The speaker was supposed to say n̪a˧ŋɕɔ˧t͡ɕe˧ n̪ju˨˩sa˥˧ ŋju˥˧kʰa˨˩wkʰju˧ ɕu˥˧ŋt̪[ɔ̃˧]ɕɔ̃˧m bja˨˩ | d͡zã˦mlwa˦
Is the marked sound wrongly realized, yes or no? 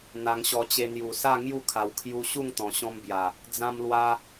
yes